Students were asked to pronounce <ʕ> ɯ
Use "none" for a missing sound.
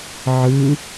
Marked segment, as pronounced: ʕ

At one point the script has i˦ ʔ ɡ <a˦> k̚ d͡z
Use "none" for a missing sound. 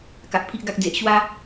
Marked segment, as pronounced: a˦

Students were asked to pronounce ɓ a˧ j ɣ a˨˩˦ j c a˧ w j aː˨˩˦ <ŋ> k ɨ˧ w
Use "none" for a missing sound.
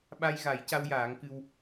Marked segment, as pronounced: ŋ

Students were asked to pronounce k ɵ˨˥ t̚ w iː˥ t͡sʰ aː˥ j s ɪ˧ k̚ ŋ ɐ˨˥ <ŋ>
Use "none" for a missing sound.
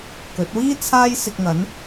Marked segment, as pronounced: n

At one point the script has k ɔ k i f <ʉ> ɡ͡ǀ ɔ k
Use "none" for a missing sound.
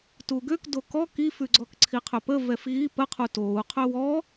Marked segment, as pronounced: ʉ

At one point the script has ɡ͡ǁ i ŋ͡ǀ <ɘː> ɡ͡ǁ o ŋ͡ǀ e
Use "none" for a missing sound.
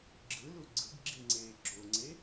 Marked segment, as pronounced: eː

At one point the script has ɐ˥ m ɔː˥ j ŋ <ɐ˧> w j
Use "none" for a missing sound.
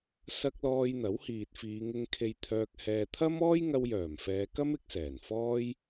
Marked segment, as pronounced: ɐ˧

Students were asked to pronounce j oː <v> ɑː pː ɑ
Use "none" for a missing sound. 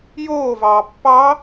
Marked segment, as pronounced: v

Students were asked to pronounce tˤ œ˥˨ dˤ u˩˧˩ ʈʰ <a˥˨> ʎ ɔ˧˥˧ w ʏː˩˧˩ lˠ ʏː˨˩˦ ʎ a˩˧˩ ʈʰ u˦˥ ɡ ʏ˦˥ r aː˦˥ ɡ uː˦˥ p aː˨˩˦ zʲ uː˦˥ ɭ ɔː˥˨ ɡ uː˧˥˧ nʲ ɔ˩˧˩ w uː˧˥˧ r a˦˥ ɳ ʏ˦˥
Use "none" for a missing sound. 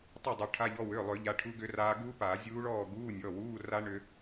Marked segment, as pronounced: a˧˥˧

